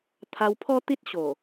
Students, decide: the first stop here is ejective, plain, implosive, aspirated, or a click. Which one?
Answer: aspirated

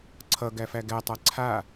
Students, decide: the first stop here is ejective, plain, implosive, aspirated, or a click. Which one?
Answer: click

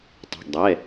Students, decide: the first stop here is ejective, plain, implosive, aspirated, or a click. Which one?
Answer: plain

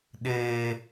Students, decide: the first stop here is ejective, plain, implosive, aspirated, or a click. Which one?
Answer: implosive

